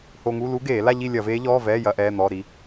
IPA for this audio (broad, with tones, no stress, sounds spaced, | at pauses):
h o˧ ŋ u˧˥˧ l u˦˥ ɡ eː˧˩˧ l a˥˧ ʎ i˥˧ lʲ ɐ˧˩˧ v eː˦˥ ʎ ɔː˧˥˧ v ɛː˧˥˧ j ɐ˧˥˧ ʔ ɛː˧˥˧ n̪ ɔː˧˥˧ ɾ i˦˥